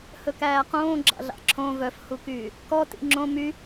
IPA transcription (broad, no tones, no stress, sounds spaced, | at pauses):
h ɵ k æː q õː ɡ͡ǁ ɑ̰ ɮ ɑ̰ ǁʰ õ v œ f h u k yː | k ɔ t ḭ ŋ͡ǁ õ m y